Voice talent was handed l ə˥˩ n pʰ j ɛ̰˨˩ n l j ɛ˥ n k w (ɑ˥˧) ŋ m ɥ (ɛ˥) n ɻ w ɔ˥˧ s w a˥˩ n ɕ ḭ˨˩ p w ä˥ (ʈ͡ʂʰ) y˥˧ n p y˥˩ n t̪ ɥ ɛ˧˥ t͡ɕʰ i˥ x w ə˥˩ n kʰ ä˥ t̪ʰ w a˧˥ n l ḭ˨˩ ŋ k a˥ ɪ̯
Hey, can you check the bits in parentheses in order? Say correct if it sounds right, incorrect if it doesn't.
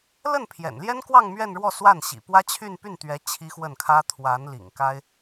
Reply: correct, incorrect: ɛ˥˧, incorrect: t͡ɕʰ

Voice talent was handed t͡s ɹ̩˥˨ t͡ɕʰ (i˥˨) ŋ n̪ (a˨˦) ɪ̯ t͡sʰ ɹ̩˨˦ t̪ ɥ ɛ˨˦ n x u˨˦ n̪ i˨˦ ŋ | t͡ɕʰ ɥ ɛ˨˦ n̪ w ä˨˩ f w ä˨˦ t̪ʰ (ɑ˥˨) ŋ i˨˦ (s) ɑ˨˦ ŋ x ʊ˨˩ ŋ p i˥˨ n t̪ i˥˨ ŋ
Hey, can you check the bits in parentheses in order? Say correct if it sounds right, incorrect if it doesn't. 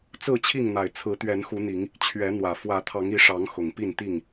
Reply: correct, incorrect: a˨˩, incorrect: ɑ˨˦, incorrect: ʂ

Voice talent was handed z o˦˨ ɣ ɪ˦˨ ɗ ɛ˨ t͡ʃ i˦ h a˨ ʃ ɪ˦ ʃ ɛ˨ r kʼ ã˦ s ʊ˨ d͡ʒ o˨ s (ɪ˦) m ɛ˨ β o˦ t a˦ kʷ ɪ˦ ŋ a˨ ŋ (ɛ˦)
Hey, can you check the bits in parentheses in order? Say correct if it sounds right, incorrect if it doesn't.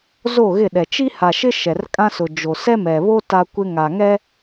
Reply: incorrect: ɛ˦, correct

